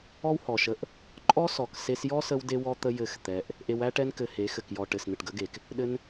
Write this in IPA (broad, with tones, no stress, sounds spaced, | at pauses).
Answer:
ɔ˦ w h ɔ˨ ʃ ə˧ ʔ | ǃʼ ɔ˦ s ɔ˨ k s e˧ s j ɔ˦ s ə˧ w d e˦ w ɔ˦ t̪ ə˦ j ɘ˦˨ x t̪ ɛ˧ ʔ | ʔ e˧ w æ˦ ʈ ɛ˦ n k ɘ˧ h e˨˦ x ɘ˨ k j ɔ˨ ʈ ɘ˨ s n̪ ɘ˨ ʈ ɡ ə˨˦ ɡ e˨ k | ɗ ɘ˦ n